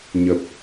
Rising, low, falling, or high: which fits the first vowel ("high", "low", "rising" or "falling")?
low